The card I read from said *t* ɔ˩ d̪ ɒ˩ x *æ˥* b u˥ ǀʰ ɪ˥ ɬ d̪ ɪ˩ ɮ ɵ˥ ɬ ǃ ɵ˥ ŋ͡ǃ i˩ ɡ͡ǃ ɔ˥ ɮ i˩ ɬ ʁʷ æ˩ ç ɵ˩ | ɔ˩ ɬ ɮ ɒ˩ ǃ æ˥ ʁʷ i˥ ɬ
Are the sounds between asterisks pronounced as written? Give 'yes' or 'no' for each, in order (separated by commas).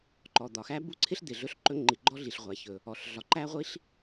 no, yes